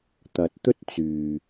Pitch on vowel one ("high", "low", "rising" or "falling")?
low